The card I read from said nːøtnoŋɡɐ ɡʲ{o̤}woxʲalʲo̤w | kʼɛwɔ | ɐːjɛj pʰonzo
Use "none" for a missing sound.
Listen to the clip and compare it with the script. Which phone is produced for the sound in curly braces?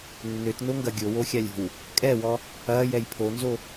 o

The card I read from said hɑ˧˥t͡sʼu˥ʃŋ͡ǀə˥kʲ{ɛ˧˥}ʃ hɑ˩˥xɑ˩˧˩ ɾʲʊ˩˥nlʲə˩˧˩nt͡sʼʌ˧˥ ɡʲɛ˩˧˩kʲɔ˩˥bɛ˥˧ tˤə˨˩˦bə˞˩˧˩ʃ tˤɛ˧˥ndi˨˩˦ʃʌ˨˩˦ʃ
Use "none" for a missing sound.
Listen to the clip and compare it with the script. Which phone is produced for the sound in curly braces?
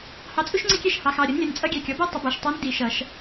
ɛ˥˧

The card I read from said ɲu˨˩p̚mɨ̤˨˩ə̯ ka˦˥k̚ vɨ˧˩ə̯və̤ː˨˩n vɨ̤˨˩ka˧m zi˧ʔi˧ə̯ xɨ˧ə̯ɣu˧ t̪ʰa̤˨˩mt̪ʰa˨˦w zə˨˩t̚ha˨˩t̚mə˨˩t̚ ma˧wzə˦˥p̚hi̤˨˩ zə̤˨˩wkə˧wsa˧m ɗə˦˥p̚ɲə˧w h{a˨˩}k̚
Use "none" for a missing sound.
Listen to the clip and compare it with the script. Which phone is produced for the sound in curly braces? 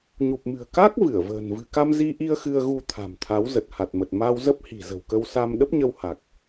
a˨˩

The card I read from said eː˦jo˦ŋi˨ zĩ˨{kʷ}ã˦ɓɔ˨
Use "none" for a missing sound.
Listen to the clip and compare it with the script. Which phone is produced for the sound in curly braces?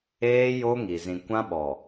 kʷ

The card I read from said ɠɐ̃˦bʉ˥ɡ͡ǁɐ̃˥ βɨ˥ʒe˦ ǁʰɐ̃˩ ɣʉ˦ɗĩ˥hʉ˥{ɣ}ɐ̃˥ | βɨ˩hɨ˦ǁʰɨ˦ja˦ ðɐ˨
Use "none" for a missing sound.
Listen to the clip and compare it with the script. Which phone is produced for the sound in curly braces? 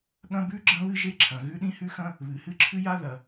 x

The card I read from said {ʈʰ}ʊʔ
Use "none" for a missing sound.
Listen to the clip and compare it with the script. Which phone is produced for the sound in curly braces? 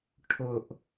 ʈʰ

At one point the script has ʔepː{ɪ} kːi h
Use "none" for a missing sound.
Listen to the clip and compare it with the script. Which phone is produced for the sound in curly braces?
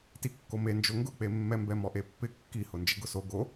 ɪ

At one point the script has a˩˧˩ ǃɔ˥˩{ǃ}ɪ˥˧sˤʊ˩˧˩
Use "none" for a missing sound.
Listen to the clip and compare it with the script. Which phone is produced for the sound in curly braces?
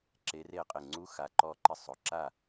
ǃ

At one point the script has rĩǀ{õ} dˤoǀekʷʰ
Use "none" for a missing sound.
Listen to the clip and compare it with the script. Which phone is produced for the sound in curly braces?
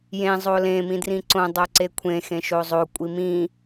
õ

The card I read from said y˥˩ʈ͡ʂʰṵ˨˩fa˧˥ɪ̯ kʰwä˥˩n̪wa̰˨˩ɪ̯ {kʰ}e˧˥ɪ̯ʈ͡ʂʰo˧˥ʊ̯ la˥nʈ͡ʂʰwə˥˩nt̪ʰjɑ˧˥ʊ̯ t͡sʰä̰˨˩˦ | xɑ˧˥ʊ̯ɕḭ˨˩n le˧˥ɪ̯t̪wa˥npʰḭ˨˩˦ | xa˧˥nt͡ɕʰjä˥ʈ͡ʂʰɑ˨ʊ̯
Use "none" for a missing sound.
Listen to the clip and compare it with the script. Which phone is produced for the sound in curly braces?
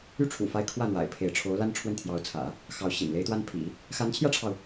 pʰ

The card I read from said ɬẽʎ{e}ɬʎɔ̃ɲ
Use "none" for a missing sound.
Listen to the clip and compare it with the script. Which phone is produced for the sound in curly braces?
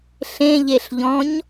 e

